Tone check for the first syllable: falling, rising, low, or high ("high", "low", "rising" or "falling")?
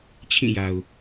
falling